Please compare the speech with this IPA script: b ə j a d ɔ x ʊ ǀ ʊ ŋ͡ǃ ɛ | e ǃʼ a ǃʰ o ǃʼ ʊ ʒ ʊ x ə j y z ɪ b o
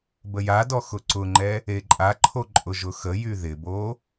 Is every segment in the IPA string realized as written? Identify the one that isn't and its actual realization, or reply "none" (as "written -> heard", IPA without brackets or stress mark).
z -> ð